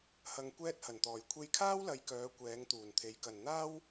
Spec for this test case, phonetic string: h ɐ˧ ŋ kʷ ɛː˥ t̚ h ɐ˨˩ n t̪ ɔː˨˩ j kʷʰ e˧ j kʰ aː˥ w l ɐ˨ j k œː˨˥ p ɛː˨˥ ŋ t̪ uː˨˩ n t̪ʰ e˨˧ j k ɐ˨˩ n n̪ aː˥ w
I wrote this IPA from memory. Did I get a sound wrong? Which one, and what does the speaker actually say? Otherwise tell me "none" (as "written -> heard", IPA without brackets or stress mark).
p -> kʷ